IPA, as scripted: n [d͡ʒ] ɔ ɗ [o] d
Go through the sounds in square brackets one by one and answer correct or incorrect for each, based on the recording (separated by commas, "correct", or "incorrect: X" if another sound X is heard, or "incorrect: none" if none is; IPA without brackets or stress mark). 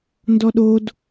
incorrect: d, correct